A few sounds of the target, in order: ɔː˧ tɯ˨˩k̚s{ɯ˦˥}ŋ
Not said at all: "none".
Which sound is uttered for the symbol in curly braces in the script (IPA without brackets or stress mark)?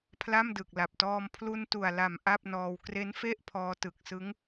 ɯ˦˥